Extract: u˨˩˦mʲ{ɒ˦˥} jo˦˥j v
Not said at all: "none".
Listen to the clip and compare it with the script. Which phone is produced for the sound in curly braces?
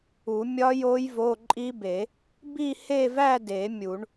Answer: ɒ˦˥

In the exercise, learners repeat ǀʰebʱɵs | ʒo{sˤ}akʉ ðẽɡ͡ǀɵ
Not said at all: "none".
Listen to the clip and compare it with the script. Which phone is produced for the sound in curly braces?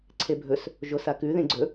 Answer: s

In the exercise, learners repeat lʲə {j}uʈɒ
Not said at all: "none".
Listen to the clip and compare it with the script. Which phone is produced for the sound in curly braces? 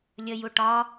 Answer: j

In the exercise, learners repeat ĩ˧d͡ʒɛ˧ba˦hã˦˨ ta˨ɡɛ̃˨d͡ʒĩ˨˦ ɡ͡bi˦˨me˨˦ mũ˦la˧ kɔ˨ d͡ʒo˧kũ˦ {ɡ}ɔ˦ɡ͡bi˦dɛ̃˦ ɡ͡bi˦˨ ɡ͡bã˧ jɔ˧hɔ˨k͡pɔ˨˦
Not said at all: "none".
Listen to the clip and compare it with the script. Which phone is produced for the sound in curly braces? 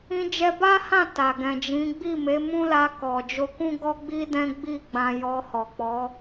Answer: ɡ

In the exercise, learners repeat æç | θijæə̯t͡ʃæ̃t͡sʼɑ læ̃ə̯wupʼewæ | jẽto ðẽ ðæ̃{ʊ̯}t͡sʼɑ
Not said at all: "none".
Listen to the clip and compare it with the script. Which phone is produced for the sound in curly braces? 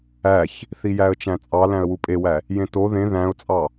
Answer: ʊ̯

